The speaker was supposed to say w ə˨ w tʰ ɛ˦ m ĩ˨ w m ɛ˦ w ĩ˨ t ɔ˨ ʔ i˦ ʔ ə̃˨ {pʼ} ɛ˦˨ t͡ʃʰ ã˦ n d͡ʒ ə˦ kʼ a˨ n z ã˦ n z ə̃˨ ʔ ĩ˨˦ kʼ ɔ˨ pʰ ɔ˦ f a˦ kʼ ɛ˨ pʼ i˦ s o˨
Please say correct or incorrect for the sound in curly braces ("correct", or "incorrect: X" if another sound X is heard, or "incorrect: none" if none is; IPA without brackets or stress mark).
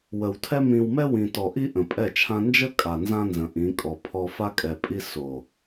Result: correct